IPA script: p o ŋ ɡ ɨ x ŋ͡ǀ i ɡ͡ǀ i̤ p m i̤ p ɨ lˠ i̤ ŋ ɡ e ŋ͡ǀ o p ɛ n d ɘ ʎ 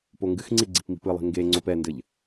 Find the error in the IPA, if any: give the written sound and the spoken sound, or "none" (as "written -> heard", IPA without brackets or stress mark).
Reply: none